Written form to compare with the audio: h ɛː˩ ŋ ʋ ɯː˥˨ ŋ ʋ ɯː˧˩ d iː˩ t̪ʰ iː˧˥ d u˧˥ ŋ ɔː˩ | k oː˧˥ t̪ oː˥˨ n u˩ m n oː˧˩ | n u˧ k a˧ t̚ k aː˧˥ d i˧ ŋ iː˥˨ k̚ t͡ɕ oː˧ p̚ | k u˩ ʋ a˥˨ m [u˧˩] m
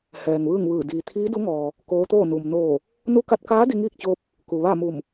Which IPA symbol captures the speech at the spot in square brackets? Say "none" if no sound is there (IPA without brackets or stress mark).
u˧˩